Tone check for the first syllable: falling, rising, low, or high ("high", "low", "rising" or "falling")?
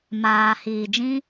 low